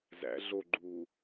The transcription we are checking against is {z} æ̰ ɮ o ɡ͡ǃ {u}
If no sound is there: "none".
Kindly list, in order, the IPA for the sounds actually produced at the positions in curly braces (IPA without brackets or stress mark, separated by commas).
z, uː